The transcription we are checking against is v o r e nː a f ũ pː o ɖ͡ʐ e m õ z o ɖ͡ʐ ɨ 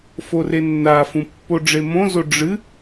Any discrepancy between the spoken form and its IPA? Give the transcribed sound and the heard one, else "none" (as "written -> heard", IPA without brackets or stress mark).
v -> f